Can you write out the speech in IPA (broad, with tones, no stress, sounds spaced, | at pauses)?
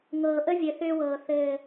ŋ ɤː˨ ʔ ə˦ vʲ ɘ˨ θ ʏː˦ w ɤː˨ θ ɘː˨